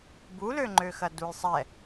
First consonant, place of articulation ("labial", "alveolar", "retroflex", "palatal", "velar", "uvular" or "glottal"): labial